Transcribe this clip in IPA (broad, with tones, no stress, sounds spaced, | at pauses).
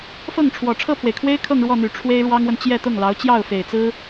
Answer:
f ɤ˥˩ ŋ ʈ͡ʂʰ w ɔ˨˩ ʈ͡ʂʰ ɤ˥˩ pʰ w e˩ ɪ̯ kʰ w e˥ ɪ̯ kʰ ɤ˥˧ ŋ ɻ w ɔ˥˩ n̪ y˨˩ ʈ͡ʂʰ w e˥ ɪ̯ ɻ w ɑ˥ ŋ w ə˨ n t͡ɕ j ɛ˥˧ t̪ ʊ˥˩ ŋ l ɑ˧˥ ʊ̯ t͡ɕ j ɑ˥˩ ʊ̯ f e˨˩ ɪ̯ t͡s ɹ̩˥